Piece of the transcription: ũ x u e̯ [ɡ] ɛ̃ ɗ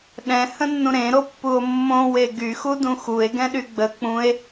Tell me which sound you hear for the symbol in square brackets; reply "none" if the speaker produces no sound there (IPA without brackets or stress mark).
ɡ